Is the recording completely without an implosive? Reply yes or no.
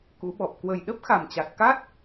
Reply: no